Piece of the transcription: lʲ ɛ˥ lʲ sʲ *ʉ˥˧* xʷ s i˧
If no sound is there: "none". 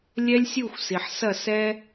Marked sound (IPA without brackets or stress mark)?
u˥˧